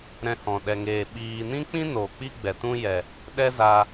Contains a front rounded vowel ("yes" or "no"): no